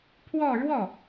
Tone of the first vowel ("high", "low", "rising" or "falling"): falling